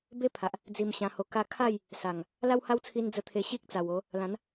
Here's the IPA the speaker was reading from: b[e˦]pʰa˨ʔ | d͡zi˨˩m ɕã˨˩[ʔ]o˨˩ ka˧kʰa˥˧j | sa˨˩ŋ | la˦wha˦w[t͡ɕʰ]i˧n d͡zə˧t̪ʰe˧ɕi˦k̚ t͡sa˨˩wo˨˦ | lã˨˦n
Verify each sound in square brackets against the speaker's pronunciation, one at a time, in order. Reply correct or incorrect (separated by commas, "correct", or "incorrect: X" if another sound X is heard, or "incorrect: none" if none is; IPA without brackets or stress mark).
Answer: correct, incorrect: h, incorrect: t͡sʰ